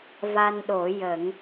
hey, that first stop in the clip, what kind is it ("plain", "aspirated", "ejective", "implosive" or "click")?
implosive